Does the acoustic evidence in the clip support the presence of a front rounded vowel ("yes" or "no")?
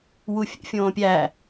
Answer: no